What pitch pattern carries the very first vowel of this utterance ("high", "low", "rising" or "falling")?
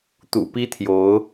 low